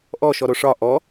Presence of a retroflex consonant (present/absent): present